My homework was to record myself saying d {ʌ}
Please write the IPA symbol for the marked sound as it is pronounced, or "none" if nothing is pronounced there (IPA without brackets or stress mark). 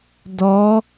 ɔ